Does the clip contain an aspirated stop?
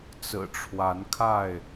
yes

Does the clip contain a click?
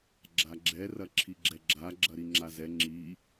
yes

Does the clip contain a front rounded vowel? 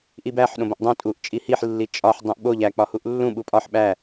no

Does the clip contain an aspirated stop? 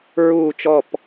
no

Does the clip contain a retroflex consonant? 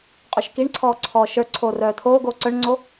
yes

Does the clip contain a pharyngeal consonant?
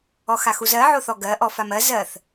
yes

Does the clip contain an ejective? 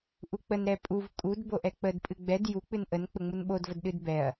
yes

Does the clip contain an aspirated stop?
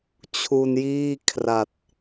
yes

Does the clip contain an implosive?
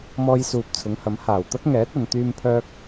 no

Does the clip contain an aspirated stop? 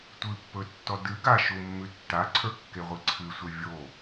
yes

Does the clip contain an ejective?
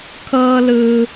no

